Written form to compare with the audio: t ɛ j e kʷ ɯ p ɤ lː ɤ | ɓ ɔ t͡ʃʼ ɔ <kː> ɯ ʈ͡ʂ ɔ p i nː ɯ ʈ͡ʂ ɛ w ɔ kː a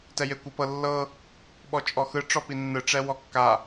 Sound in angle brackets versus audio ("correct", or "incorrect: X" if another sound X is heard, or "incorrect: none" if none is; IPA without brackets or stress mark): incorrect: x